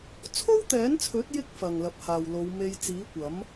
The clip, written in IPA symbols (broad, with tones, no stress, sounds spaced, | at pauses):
t͡sʰ o˥ w t̪ ɛː˨˥ n t͡sʰ ɵ˨˥ t̚ j ɪ˥ k̚ f ɐ˨ ŋ l ɐ˨˥ p̚ h aː˨ w l o˨˧ w m e˧ j t͡s iː˨˥ kʷ ɐ˨˥ m